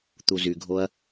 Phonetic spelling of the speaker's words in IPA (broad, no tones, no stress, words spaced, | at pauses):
t̪uzyɡʱoɐ̯